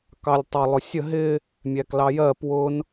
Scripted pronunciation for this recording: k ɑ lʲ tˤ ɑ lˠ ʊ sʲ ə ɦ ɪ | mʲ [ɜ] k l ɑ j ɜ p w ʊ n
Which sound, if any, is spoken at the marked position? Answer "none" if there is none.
æ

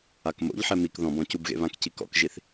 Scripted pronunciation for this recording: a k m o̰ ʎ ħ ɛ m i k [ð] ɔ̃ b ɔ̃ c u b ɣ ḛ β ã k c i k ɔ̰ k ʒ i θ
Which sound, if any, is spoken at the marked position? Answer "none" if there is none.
ð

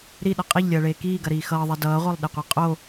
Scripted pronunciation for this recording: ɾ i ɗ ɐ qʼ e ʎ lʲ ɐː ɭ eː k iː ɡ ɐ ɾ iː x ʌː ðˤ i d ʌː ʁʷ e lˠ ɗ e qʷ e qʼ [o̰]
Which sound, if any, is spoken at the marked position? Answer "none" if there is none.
o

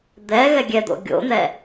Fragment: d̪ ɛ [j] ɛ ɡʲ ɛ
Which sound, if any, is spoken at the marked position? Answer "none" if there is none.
ɣ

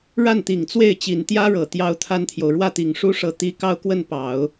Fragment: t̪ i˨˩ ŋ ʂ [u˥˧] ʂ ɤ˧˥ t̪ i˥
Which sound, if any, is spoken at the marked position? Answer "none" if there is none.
u˥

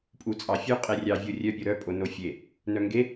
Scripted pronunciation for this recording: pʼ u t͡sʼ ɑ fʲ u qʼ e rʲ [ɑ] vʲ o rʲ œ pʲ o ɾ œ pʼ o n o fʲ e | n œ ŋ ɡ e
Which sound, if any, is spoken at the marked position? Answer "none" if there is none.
ɑ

